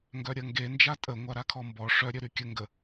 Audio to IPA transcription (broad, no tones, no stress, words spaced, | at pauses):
ŋɡœɾʲɐŋɡe nd͡ʒatʼə ŋʷaɾakʰɔmbɔ ʂœ ɾʲœɾykʲə ŋɡə